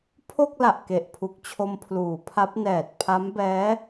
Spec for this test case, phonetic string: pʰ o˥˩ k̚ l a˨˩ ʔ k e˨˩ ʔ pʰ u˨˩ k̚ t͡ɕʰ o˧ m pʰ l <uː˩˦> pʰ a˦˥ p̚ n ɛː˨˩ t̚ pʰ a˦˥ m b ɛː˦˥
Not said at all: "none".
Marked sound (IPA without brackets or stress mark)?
uː˩˦